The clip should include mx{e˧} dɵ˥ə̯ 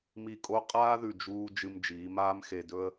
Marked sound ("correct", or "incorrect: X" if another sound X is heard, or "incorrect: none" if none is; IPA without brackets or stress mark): correct